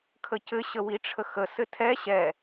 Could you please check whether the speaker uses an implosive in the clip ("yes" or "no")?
no